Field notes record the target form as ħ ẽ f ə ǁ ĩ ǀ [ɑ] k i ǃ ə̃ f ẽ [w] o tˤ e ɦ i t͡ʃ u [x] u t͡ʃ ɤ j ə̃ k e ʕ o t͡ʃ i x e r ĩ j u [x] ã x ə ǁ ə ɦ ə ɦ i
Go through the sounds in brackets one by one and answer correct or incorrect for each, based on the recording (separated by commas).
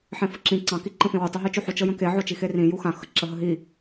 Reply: incorrect, correct, incorrect, correct